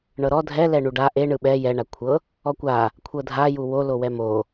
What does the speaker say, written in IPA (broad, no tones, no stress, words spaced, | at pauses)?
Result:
ɳɤɾɔ dʱɛlɛ ɳuɖa ʔe ɳɯɓɛ jɛ ɳakʷʰɤ | ɔkʷa | kʷʰɤdʱaju wolo wɛmo